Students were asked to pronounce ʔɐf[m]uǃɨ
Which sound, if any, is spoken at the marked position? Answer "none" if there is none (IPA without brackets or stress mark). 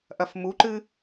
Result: m